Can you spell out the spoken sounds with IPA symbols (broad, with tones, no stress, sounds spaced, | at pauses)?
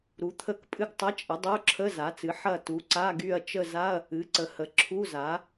ɾ u˩˥ t̪ʰ ə˦˨ k pʼ ɨ˦˨ ɡ tˤ ɐ˧˥˧ t͡ʃʼ ə˩˥ dˤ o˧˥˧ ǁʰ ə˧˥˧ z a˩˥ t͡s ɨ˩˥ ħ ɐ˦˨ t u˩˥ ǀ a˧˥˧ ɡ y˦˨ ɐ̯ t͡ʃ ə˦˨ z a˧˥˧ ɐ̯ | ɨ˩˥ ǀ ə˩˥ h ə˩˥ ǁʰ u˧˥˧ z a˩˥